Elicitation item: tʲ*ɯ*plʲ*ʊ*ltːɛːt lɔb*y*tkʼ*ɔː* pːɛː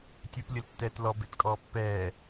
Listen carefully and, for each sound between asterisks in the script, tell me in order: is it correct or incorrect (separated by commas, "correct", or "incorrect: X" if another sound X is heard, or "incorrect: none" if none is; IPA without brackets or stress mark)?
incorrect: u, incorrect: ɯ, incorrect: e, correct